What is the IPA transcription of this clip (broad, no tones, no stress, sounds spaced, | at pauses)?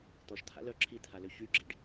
t̪ ɔ ʃ t̪ʰ a̰ l œ ǁʰ i t̪ʰ a l ø ç y ɡ͡ǁ i ɖ